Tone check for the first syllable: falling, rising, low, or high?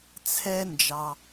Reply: high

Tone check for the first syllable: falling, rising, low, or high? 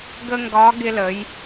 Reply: high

